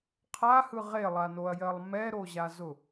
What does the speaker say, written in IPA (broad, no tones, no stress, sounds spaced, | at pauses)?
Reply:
qʰ a h ɯ ʁ e lˠ a n o ɐ̯ j ɜ lˠ m ɛ ɾ o ʑ a z ʊ